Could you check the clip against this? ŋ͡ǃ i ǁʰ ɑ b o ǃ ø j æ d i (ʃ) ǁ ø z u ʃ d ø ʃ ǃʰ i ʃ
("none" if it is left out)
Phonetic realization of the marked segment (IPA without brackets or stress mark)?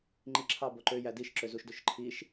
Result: ʃ